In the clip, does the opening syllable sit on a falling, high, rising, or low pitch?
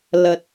low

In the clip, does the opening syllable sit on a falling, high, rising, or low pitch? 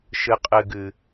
low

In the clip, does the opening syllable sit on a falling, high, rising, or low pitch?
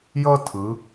high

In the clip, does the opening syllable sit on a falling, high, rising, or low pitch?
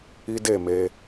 high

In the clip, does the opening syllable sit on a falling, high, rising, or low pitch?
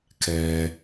low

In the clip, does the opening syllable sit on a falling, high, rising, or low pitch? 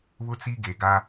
high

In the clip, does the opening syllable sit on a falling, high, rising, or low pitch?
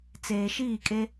low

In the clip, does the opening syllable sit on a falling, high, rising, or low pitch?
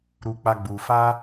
high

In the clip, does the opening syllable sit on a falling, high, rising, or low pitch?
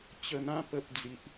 low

